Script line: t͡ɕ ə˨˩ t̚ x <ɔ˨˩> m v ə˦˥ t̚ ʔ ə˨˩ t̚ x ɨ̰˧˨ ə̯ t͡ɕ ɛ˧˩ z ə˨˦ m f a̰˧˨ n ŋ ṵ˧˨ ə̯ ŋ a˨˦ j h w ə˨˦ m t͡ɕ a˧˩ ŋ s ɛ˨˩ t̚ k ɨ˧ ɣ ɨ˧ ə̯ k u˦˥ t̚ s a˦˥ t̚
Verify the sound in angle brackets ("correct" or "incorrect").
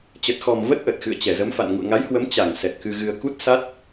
correct